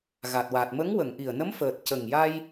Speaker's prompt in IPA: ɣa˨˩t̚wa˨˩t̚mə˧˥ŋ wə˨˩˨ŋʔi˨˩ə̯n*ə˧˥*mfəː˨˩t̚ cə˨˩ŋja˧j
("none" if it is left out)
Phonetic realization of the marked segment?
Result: ə˧˥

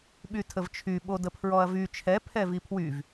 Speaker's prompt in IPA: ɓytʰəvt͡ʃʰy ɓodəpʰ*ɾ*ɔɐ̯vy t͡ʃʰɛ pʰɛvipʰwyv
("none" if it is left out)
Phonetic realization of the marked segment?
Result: ɹ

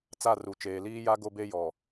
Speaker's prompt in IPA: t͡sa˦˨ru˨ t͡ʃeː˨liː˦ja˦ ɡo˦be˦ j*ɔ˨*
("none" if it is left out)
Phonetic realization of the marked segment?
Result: ɔ˨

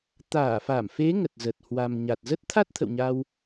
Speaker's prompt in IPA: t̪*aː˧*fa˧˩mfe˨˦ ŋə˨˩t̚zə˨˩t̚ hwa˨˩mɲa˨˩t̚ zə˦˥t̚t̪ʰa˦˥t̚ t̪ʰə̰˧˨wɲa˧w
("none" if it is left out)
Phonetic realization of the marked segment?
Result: aː˧˩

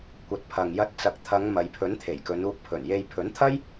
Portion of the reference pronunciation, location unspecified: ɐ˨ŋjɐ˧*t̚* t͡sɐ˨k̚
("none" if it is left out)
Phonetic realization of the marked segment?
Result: t̚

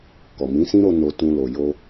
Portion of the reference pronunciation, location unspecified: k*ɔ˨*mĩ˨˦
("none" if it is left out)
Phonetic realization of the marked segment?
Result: ɔ˨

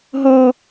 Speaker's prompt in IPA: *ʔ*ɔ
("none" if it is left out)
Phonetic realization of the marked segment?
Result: ɦ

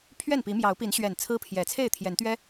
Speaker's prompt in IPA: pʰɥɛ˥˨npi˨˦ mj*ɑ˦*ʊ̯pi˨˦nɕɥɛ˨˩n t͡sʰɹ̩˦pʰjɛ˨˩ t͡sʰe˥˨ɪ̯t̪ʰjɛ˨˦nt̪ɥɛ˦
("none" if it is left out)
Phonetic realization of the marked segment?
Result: ɑ˨˦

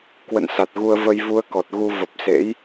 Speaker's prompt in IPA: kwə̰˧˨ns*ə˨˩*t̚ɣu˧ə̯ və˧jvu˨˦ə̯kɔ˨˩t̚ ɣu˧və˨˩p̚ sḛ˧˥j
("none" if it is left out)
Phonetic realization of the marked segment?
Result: a˨˩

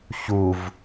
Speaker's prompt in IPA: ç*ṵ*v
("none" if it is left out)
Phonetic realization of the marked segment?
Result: u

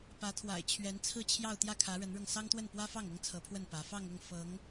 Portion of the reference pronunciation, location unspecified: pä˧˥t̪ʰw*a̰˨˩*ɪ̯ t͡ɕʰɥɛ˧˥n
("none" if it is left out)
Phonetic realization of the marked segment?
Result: a̰˨˩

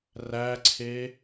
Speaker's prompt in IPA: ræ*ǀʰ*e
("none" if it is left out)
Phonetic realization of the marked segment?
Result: ǀʰ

